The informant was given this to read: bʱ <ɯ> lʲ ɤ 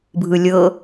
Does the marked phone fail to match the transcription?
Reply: no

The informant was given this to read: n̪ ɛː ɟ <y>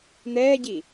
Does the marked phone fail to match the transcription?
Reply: yes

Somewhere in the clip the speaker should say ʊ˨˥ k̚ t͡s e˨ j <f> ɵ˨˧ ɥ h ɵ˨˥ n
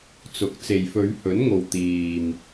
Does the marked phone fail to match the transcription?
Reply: no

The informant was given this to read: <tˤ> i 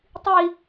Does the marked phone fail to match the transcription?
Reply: no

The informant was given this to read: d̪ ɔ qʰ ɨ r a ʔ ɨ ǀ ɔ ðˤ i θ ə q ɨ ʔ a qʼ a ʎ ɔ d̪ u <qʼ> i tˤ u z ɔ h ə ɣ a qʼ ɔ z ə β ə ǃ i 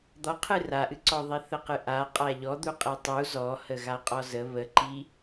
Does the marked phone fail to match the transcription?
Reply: no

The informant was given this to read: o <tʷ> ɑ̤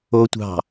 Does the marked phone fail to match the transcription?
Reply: no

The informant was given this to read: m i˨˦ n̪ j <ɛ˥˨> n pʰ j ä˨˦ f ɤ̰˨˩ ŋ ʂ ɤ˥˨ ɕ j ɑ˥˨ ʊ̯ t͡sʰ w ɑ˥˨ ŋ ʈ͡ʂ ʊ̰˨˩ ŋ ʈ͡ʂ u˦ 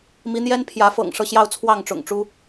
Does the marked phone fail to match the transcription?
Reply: yes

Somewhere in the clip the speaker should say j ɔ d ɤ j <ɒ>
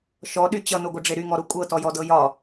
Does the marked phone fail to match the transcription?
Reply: no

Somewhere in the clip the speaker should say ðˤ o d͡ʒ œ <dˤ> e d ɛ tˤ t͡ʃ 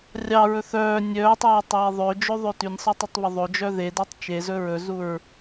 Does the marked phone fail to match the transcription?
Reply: yes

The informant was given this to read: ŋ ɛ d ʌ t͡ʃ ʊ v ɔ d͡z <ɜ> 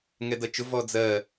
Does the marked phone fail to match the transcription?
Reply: no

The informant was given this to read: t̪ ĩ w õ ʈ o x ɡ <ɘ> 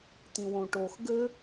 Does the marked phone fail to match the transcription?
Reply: no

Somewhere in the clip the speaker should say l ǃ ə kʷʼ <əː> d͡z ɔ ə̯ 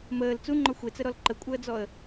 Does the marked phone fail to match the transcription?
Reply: no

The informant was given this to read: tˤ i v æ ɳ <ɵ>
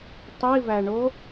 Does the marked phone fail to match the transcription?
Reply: yes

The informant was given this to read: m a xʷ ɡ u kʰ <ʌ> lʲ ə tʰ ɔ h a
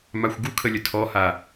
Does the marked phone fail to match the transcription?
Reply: yes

